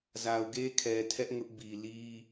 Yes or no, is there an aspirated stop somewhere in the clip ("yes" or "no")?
yes